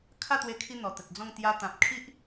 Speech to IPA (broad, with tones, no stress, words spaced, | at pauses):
kʰa˥˧t̪we˧kʰi˧ n̪ɔ˨˩t̪ə˨t̚d͡zɔ̃˥˧ŋ t̪ja˧t̪ã˨p̚kʰi˦ʔ